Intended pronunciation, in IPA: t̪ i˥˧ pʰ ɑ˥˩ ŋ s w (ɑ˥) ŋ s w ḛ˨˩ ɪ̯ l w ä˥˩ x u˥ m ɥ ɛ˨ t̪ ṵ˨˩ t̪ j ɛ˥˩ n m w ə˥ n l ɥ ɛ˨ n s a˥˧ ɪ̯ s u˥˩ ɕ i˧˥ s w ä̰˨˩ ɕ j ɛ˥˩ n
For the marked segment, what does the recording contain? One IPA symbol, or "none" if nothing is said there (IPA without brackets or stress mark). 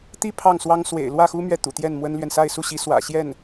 ɑ˥